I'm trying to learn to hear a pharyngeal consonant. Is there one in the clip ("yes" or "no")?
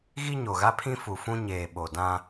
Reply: no